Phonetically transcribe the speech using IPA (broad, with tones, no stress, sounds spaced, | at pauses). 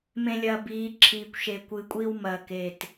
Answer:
m ẽ˨ lʲ ɐ˨ b iː˨˦ ǁʰ iː˨ kʷ ʃ e˨ kʷ ɨ˨ kʷʼ i˦ w m ɐː˦˨ k e˦˨ t